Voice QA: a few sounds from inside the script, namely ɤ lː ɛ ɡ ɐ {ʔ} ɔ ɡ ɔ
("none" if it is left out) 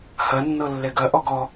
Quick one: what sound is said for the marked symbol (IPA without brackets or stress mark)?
ʔ